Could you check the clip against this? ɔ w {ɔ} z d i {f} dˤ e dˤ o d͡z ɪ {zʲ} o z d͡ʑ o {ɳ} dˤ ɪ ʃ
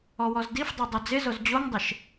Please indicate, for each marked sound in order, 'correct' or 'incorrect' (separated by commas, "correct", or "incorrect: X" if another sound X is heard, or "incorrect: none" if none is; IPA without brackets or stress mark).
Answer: correct, correct, incorrect: z, incorrect: ŋ